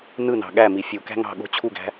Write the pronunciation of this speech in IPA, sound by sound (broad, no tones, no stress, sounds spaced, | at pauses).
n ɯ n ɑ̤ ɠ æ m i fʲ u k æ̤ ŋ ɑ̤ ɠ o̤ t͡ɕʰ u ɡ æ̤